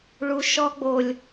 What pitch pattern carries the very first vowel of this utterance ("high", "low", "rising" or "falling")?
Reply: high